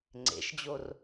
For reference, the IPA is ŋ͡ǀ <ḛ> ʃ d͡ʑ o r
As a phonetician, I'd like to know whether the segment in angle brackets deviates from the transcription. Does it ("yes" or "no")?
no